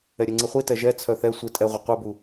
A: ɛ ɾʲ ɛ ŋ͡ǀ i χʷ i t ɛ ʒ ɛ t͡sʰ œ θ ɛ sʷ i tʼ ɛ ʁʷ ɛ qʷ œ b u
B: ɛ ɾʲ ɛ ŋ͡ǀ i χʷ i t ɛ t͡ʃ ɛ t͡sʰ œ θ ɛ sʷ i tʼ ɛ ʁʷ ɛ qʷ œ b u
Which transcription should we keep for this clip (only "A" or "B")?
A